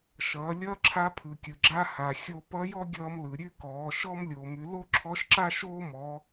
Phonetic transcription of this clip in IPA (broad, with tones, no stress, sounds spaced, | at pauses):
ʃ ʌː˩˧ lʲ ʌː˥ ǁʰ a˧˥ pʰ ɯ˩ kʲ ɯ˩ ɡ͡ǁ a˥ h a˩ xʲ o˧ p ʌ˧˥ j ɔ˥ ɡʲ ʌː˧ m l ɯ˩ ɾʲ ʉ˥ k ɔː˩˧ ʃ ɔ˥ m lʲ oː˩ m ʉ˩˧ l o˥ ǁʰ ɔ˧˥ ʃ ǁ a˥ ʃ oː˥ m ɔ˩˧